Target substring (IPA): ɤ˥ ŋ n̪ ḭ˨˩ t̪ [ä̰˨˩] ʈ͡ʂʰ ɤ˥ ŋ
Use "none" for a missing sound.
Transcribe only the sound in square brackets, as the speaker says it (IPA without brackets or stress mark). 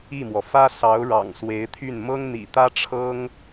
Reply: ä˥